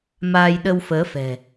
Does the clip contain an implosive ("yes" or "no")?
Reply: yes